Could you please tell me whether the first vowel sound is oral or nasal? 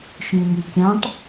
nasal